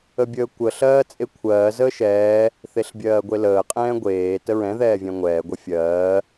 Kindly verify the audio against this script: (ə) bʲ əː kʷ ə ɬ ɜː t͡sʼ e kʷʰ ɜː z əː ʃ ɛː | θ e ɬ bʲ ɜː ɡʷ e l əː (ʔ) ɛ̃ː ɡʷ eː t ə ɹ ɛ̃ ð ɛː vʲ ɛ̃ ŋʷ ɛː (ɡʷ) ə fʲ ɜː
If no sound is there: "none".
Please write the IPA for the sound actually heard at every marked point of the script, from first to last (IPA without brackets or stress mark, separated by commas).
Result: ə, qʼ, ɡʷ